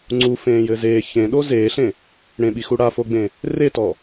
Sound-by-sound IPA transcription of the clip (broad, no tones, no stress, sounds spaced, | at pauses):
ŋ͡ǀ u f ẽː j ɘ z eː ç ẽ ɗ o z eː ɬ ẽ | ɽ ẽ ɓ i x u ɽ a f o ɡ͡b ẽ | r e t ɔ